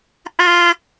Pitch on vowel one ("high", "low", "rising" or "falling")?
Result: high